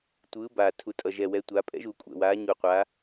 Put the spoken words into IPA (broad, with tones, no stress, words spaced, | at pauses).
tʷɯː˨˥baː˨˩ tʰu˨˩tʼʌ˨˩ ʒɛ˨˩wɛ˨˥ tʷaː˩˧pʼɛ̰˨˥ʒuː˨˩ kʷʼɛ̰˨˩waː˨˥ɲu˨˩ qʷaː˨˥